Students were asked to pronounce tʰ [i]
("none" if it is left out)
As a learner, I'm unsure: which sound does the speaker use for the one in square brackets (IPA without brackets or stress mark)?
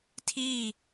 i